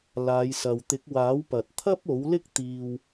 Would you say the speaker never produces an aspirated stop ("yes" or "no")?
no